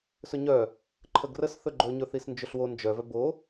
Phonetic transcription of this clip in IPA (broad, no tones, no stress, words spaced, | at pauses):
sɵɲœ | ǃʰəɡrəs θɵɡ͡ǃɵɲɵ θisnd͡ʒɵɬwo nd͡ʒœvœ bo